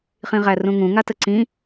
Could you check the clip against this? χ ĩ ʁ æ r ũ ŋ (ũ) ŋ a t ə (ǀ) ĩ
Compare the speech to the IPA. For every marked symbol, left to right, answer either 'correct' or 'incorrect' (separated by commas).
correct, correct